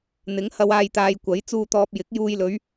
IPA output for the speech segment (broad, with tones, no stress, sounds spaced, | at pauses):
n̪ ɪ˨˥ ŋ h ɐ˨˧ w aː˧ j t̪ aː˧ j kʷ ɐ˨˥ j t͡s uː˨ t̪ ɔː˨ p̚ j ɪ˨˥ k̚ j uː˧ j l ɵ˨˥ ɥ